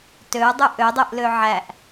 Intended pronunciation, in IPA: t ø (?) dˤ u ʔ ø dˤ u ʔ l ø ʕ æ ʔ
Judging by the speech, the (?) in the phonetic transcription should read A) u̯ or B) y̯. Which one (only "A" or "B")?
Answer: A